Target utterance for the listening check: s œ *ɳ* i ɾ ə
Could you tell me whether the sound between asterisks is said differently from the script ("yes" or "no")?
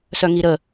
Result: yes